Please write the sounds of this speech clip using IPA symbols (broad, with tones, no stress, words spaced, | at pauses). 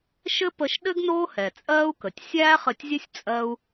ʃɘ˥pə˧ʃ ɗɘ˥ɡ noː˥hɛ˩t͡sʼɜː˥u̯kə˩tʲ sʲæː˥χɘ˧tʲzʲɘ˥sʲ t͡sʼɜ˥u̯